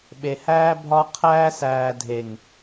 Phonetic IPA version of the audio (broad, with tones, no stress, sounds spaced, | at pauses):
ɓ e˨ h æː˧ bʱ ɒ˧ qʰ æː˧ s æː˨ dʱ e˨ ŋ